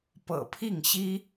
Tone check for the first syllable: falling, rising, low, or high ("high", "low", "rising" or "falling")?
low